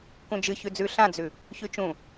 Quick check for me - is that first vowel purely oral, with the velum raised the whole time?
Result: no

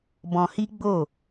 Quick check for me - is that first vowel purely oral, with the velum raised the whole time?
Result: no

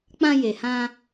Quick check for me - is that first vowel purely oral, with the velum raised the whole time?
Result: no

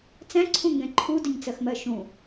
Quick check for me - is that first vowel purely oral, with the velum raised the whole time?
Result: no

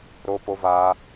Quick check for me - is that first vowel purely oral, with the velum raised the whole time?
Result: yes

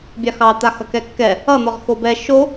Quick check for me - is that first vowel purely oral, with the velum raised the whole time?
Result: yes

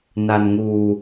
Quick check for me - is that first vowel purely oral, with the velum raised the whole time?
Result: yes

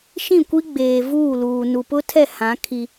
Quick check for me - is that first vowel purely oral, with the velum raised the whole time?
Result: no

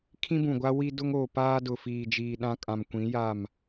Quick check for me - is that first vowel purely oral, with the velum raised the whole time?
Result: no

